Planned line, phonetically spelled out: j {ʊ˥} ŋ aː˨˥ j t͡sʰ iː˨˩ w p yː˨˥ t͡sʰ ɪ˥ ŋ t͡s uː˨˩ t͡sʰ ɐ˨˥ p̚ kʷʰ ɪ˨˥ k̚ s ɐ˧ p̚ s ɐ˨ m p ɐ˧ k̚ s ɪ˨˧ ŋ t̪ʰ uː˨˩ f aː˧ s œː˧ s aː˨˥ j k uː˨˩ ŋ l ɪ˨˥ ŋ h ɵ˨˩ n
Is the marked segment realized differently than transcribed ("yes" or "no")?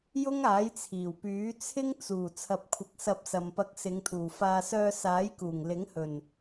no